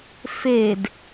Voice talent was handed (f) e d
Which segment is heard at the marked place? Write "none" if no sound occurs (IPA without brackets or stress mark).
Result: f